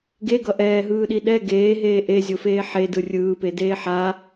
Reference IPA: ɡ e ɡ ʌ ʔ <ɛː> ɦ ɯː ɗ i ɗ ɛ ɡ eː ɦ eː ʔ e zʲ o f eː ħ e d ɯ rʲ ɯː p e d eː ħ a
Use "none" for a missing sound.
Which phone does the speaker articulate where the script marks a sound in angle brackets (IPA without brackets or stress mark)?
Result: ɛː